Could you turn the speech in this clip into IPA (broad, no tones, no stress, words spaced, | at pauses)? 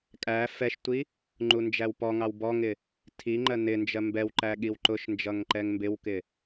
kʼæ fɛʃtʷi | ŋ͡ǃund͡ʒæwpɔŋɑw bɔŋɪ | tʰiŋ͡ǃɜ nɪnd͡ʒɜ mbɛwǃæ ɠiwǃʊʃnd͡ʒʌŋ ǃɛŋmbɪwkɪ